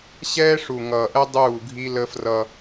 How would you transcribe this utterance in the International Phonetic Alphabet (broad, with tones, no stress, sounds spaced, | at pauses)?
ɕ ɛː˦ ʂ u˨ ŋ ʌː˨ ʔ ɛ˦ dˤ uː˦˨ ɡʱ i˦ l ə˦ f r ʌ˦